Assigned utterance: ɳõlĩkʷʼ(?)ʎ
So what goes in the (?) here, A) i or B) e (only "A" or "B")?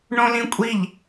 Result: A